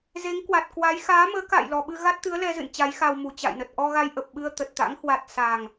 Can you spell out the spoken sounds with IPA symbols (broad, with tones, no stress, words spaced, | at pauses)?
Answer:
ze˨˦ŋkwa˨˩t̚kwa˨˦j xaː˨˦məː˨˦ ka̰ː˧˨jlɔ˨˩ɓɨ˧ ɣa˦˥t̚t̪ɨ˨˦ə̯lɛ˧zɨ̰˧˨n t͡ɕa˨˦jxa˧wmu˨˩ t͡ɕa̰˧˨jnə˨˩t̚ ʔɔ˧ɣa˧jʔə˨˩p̚ ɓɨ˧ə̯t̪ə˨˩t̚t̪a̰˧˥ŋhwa˨˩t̚ sa˨˩ŋ